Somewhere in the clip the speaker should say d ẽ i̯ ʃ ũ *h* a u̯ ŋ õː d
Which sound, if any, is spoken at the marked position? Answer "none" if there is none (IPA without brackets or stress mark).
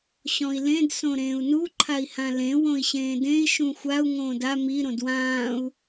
xʷ